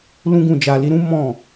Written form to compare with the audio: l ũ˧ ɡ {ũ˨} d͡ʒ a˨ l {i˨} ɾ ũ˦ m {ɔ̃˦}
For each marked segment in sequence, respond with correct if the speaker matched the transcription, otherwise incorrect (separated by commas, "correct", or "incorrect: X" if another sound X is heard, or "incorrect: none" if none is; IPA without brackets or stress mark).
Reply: correct, incorrect: i˧, incorrect: ɔ̃˦˨